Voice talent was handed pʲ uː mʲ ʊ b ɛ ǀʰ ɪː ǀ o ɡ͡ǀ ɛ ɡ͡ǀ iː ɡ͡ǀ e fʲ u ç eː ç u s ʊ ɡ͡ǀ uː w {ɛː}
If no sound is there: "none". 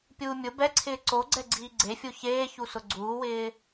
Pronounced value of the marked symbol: ɪː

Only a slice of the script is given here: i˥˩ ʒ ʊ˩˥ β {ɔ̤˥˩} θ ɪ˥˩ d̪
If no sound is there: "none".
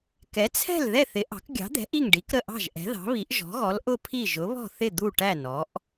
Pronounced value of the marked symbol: ɔ̤˥˩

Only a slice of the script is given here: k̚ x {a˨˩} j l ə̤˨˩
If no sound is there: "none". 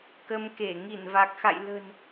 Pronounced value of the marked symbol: a̰˧˨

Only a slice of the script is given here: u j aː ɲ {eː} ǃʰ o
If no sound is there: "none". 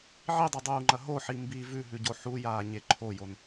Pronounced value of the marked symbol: e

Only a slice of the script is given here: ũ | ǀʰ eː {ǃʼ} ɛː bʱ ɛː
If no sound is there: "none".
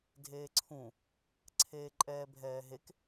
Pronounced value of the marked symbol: ǃʼ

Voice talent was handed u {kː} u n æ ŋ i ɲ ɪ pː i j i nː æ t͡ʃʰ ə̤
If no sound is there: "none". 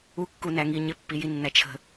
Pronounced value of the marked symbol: kː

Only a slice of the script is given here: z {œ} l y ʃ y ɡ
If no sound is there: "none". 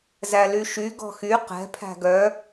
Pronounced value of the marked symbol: æ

